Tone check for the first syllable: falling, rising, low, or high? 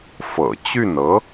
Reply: low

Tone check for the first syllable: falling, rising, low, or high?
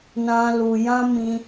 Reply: high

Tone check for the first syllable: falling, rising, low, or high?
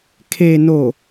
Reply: low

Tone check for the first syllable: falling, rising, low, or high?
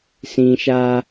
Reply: high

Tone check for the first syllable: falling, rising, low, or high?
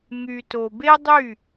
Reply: low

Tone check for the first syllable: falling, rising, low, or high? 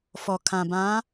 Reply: low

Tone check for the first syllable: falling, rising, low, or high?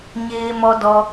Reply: low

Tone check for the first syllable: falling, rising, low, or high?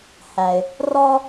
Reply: low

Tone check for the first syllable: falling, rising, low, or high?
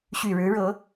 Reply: low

